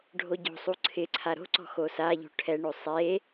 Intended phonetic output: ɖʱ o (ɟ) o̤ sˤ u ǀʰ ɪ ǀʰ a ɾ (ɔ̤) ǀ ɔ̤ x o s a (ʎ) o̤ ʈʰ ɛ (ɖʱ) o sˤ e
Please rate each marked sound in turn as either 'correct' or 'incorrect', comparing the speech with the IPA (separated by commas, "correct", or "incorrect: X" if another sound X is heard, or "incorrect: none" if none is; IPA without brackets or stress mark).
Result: correct, incorrect: o̤, correct, incorrect: ɳ